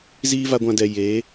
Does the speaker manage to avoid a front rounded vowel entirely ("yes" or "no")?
yes